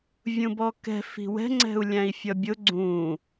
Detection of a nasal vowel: present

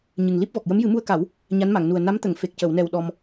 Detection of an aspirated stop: absent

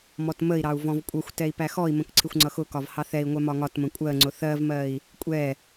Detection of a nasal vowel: present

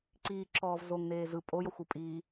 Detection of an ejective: present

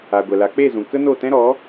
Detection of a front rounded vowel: absent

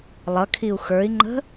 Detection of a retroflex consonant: absent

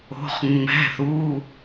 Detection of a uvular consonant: present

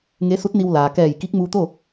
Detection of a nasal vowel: absent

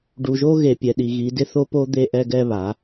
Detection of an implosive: present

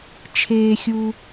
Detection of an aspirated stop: present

